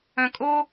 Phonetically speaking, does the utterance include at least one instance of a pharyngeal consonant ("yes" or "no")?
no